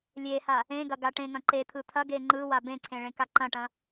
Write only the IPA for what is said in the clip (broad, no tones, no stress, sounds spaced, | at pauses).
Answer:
lʲ e h a | ẽ ɡ ɐ ɡ a ʈ ẽ ŋ ɐ̃ ǃ e t̪ʰ ɯ t̪ʰ ɐ ɡ e ŋ͡ǃ ɯ w a b ẽ ǀʰ ẽ ɭ ẽ k a ǃ ɐ̃ ʈ ɐ̃